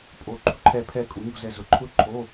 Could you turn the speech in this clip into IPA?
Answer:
pʼ o˨˩˦ ǃ ṳ˧˩ ǃʰ ɛ˧˩ pʰ ɛ˧˩ kʼ u˨˩˦ ɲ o̤˧ z ɛ˧˩ z ʊ˨˩˦ ǃʰ ʊ˦˥ ǃʰ o˧˥˧

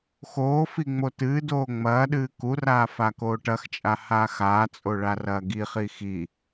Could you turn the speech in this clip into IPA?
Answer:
x oː f i ŋ͡m o t ɨː d oː ŋ͡m ɐː ɗ ɨː k u r aː f a k oː ʈ ɐ x t͡ʃʼ a h aː x aː t͡sʼ o ɭ a r ɐː ɡ i χ i x i

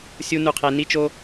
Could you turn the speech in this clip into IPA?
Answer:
sʲ u˥ n u˦ qʰ e˦ n i˥ t͡ʃ o˥

